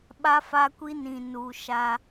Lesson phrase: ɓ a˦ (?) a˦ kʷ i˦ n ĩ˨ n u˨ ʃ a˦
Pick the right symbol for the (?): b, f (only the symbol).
f